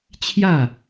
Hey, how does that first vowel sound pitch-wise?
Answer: falling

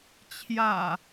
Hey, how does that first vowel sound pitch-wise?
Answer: low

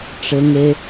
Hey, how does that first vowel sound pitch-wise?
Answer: low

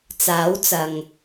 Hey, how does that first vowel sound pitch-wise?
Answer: rising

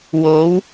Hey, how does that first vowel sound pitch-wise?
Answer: rising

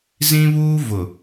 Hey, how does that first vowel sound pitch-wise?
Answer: high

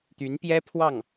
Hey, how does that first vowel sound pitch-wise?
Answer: rising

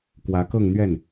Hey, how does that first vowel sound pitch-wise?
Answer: rising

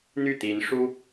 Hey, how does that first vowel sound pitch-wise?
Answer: falling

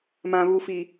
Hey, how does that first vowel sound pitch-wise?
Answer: low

